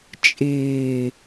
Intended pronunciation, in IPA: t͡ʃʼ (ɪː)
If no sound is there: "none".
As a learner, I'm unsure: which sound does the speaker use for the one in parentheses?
ɪː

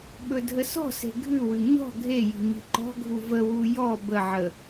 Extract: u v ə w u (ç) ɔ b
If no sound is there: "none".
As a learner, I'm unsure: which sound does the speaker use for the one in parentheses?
j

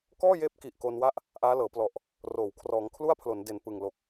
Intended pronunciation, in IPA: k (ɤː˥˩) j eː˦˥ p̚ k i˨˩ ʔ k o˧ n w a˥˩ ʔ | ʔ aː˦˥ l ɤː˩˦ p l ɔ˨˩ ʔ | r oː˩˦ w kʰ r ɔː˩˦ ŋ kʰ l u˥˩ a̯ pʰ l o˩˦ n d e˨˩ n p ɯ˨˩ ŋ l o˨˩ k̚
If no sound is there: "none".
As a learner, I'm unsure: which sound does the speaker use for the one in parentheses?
ɔː˥˩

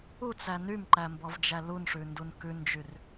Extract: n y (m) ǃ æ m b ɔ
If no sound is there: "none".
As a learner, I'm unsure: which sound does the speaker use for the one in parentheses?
m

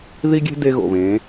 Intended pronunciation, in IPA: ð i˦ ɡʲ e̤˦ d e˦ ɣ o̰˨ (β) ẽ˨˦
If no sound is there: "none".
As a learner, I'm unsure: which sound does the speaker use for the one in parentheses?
β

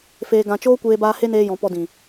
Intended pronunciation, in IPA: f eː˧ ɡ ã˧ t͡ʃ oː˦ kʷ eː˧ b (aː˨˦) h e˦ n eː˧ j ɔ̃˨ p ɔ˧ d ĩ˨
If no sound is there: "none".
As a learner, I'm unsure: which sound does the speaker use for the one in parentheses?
aː˧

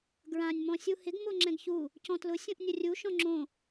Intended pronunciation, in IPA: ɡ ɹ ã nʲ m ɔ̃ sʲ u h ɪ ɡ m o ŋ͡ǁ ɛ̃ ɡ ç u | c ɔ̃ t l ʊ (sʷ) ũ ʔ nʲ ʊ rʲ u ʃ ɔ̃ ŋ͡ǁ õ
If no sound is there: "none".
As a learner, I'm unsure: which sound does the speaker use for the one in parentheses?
sʲ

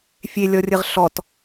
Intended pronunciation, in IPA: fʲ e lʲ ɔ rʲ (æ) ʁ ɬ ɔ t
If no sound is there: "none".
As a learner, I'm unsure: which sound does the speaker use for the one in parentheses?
ə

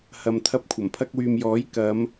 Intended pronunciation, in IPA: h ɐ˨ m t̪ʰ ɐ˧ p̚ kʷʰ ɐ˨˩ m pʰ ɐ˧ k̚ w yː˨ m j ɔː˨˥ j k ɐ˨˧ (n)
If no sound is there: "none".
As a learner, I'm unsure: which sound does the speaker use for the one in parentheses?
m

